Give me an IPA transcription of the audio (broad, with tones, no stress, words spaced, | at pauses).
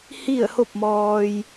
hi˥˨ə̯ho˥˨p̚mɔː˧j